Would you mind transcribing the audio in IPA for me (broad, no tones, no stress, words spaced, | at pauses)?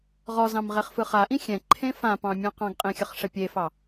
ʁɔzɑ̃m ʁeχfɯχaʔĩ xʲɛ̃ǃʰẽ fãpɑ̃ mʲɔ̃qɑ̃ɡqʼẽ xʲəχʂɛpʲefɑ